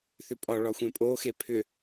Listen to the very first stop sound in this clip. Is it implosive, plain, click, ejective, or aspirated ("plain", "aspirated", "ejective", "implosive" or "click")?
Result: ejective